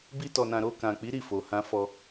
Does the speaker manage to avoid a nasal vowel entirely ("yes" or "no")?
no